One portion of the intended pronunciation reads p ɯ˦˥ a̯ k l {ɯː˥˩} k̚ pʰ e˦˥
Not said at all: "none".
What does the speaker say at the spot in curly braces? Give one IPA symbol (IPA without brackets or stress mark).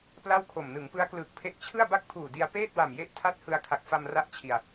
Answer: ɯː˨˩